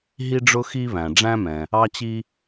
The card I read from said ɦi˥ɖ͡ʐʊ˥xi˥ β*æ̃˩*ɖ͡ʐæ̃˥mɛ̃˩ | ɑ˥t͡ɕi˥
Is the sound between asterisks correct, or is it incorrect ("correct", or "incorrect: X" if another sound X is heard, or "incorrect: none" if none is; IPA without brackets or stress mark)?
correct